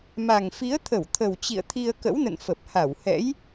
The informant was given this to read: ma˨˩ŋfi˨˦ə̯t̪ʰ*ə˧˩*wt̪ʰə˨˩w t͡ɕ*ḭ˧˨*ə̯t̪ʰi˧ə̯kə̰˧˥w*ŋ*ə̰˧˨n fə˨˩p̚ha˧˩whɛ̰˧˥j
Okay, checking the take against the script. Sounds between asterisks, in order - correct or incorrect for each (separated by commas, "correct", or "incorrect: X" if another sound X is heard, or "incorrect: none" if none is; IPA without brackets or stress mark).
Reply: correct, correct, incorrect: n